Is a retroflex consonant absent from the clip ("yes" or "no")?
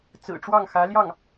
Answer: no